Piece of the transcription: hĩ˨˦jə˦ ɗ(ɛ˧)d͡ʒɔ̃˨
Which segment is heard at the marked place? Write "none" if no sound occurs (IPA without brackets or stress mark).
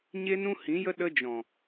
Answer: ə˧